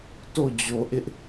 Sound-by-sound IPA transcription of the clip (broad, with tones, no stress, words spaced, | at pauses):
to˦˨d͡ʑo˨ʔɪ˦ʔ